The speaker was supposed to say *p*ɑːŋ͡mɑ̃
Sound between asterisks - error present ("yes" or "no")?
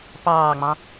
no